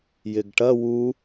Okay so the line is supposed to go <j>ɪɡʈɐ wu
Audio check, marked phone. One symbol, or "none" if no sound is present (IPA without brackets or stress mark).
j